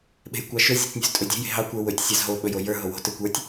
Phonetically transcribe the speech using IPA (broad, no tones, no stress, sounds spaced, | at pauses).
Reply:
ɓ e̤ j kʷ ɑ ʃ ɵ zʲ ø tʲ nʲ o̤ z tʼ ɵ dʲ e̤ j e̤ ɦ ɑ kʷ ə˞ w ɵ tʲ sʲ ɑ z ɦ o ɓ ɵ j o j ə˞ ɦ o w o̤ t ə˞ kʷ ə˞ tʲ